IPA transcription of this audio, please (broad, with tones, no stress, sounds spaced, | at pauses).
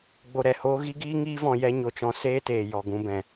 ɡ͡b o˧ ɾ ɛ˨ h oː˦ ɣ i˦ ɡ iː˦ ŋ iː˦ v ɔ̃˧ j ɛ˦ ɲ o˧ t͡ʃ ɔ̃˧ s eː˦ t eː˨ j ɔ˨ ɡ ũ˧ b ɛ̃˨